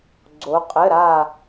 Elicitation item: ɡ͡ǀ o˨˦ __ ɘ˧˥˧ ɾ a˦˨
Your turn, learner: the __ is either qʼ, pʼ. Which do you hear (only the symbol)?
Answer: qʼ